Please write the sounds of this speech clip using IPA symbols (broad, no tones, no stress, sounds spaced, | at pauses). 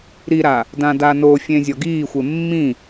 ɾ i ɾ a | d ã d a n o fʲ ẽ zʲ ɔ ɡ iː xʷ e mː ĩ